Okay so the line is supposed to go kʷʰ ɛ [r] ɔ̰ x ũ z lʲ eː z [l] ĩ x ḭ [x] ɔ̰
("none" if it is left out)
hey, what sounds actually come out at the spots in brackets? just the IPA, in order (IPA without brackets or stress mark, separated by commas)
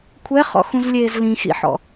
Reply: χ, l, ħ